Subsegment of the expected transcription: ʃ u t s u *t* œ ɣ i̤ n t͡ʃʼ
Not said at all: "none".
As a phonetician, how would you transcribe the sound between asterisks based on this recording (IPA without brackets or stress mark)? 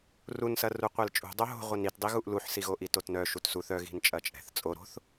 θ